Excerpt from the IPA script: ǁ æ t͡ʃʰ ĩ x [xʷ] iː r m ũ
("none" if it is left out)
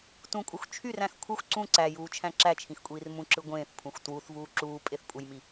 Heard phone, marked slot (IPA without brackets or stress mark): kʷʼ